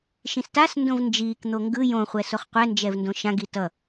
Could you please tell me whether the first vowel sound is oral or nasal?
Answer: nasal